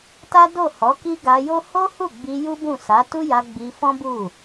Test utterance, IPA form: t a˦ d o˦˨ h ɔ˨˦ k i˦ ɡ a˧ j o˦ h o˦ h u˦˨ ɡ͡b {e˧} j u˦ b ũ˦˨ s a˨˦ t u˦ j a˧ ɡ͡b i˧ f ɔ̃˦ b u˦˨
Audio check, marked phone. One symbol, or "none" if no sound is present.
i˧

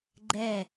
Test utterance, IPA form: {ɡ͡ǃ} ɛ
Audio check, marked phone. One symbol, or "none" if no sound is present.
ɡ͡ǃ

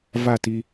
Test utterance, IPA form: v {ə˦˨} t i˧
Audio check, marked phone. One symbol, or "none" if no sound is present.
a˦˨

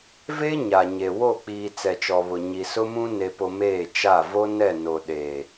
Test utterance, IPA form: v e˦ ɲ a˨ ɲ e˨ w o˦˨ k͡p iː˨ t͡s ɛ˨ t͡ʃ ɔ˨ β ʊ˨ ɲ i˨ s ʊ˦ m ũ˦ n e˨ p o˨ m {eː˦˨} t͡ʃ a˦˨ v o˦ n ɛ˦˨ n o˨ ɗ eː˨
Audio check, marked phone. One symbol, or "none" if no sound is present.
eː˦˨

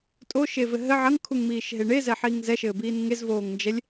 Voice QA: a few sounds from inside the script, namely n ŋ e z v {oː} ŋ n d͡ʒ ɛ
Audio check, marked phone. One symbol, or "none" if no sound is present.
oː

